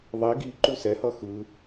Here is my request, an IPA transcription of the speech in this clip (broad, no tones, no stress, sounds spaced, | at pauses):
ðˤ i ɡ i ǃ u s ɛ h ʌ x ɯ